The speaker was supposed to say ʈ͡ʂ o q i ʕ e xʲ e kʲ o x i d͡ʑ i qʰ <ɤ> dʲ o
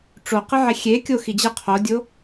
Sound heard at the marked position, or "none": o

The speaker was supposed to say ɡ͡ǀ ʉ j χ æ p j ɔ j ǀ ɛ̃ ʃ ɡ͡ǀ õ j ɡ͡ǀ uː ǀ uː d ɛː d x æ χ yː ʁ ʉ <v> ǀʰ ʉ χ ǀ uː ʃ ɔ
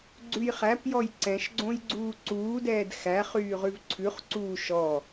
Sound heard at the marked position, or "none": v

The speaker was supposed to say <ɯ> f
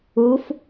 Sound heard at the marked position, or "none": u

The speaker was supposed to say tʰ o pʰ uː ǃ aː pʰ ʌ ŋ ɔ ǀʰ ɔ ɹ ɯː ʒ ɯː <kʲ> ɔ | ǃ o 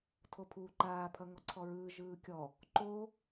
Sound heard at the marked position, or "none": kʲ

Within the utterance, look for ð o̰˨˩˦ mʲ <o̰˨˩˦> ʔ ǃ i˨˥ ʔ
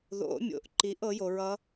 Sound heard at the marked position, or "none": o̰˨˩˦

